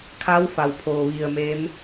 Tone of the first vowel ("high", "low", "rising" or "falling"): rising